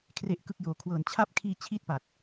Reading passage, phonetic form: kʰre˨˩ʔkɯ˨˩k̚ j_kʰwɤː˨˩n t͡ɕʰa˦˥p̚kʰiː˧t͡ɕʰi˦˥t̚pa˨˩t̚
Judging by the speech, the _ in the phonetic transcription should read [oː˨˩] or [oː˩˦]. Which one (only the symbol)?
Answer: oː˩˦